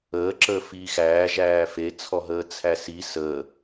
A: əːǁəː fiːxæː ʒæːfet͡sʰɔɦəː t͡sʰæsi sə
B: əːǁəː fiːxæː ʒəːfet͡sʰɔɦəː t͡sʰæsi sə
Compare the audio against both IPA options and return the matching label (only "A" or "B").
A